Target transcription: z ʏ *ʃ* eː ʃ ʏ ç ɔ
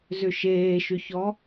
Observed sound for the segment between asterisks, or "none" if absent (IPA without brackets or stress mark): ʃ